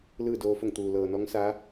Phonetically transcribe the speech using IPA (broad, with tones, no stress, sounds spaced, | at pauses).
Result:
l ɯː˥˨ d oː˧ f o˥˨ ŋ t̪ uː˩ l ɤː˩ n ɔː˧˥ ŋ s a˧˥